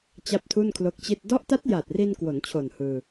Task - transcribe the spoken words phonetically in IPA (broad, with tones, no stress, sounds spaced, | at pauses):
t͡ɕ a˥˩ p̚ tʰ u˥˩ n kʰ l o˦˥ k̚ t͡ɕ i˥˩ t̚ d ɔ˦˥ ʔ t a˦˥ t̚ j a˨˩ t̚ r i˧ n k w o˩˦ n t͡ɕʰ o˨˩ n h ɯː˧